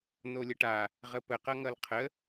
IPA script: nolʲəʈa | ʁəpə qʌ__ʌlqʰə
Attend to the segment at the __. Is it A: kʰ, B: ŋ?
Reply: B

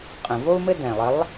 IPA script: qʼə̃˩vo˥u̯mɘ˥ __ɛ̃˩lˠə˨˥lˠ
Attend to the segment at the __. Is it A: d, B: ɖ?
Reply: A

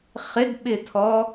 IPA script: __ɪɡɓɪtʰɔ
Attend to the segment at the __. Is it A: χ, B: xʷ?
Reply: A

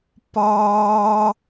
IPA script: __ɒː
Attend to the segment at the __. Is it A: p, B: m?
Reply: A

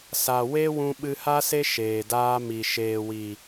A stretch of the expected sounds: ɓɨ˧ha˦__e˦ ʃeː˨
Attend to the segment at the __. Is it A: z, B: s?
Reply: B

